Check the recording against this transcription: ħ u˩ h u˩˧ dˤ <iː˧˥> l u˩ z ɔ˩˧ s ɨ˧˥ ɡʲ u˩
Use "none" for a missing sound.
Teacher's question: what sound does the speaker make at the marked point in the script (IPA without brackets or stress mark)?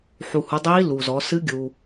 iː˧˥